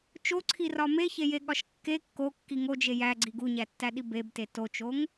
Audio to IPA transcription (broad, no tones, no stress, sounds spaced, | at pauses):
t͡ʃ o ǀʰ i r ɒ m e ç e j e ɠ ɒ ʃ kː e kː o kː i ŋ o d͡ʒ e j æ ɡ͡ǀ i ɡ u ɲ æ tː æ ɗ i b e b t e t o t͡ʃ o ŋ